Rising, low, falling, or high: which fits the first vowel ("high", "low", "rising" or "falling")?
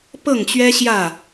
falling